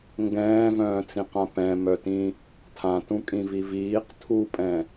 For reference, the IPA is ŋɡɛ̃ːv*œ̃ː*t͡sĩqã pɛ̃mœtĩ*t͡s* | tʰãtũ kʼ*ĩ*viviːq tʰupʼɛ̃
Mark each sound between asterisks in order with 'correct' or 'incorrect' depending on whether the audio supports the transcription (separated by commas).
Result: correct, incorrect, correct